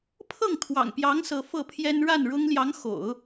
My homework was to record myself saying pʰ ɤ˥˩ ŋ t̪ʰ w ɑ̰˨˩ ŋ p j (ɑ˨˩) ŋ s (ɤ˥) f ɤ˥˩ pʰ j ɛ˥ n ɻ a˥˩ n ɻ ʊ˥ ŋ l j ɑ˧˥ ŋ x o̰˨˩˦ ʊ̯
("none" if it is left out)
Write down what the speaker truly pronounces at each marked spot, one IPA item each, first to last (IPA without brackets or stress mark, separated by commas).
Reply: ɑ˧˥, ɤ˧˥